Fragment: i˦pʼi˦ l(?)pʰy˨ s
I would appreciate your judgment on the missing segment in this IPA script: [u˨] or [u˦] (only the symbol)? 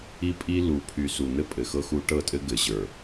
u˨